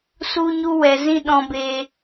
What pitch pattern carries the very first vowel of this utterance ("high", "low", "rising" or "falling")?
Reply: high